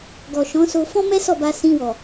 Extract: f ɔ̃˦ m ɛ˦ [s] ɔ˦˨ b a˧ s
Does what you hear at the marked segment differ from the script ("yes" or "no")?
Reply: no